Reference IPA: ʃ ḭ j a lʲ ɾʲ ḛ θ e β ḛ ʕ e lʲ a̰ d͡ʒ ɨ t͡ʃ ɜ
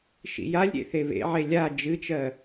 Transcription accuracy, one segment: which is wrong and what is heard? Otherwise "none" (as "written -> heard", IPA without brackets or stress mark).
a̰ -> a